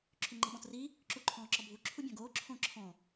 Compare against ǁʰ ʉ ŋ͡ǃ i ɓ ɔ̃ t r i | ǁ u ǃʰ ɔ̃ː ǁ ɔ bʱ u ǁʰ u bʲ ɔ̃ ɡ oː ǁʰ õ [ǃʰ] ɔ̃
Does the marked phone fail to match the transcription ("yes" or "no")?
yes